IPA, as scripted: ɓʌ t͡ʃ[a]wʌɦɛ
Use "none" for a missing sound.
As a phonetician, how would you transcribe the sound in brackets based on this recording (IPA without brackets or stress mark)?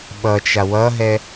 a